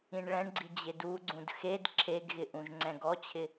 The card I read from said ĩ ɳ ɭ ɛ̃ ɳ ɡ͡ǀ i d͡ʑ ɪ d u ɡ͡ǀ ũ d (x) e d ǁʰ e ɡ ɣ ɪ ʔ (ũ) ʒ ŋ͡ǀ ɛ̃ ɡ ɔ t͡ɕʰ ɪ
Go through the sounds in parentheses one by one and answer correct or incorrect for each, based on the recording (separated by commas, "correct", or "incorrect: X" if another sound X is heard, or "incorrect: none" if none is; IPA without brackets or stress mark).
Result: correct, correct